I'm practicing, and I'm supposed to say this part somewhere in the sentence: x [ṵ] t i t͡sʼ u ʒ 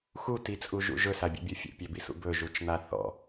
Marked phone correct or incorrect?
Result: incorrect